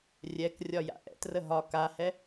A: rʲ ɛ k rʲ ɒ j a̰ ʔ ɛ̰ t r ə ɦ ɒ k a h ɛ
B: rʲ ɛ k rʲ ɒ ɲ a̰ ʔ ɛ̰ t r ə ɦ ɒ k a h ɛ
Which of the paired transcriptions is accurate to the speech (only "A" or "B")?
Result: A